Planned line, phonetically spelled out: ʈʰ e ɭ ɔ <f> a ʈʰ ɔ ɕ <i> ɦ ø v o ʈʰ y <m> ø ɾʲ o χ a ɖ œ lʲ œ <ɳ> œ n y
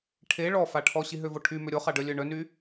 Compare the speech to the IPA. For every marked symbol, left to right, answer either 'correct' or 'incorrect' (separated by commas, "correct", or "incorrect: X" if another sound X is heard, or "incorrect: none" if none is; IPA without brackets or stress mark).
correct, correct, correct, correct